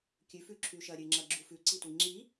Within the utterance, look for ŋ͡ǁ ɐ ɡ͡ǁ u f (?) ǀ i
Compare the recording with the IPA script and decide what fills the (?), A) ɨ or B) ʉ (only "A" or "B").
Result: B